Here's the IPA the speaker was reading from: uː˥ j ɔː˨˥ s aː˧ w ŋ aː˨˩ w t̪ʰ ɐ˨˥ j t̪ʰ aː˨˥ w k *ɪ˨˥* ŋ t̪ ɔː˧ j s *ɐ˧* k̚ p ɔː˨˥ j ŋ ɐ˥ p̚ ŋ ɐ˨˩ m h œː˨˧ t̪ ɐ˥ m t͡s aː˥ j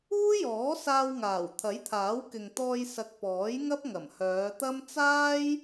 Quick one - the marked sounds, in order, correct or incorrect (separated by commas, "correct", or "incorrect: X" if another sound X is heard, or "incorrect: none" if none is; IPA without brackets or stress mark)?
incorrect: ɪ˨, incorrect: ɐ˨